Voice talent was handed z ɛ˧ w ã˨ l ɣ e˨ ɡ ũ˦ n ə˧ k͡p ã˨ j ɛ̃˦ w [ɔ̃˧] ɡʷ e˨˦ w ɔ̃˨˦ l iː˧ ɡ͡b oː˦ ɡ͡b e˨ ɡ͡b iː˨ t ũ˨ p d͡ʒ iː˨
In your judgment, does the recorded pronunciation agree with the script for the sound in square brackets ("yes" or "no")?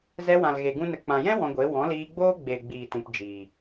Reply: yes